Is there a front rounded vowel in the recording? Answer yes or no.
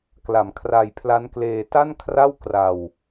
no